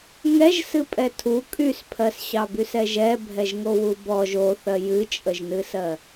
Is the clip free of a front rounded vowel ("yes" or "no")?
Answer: no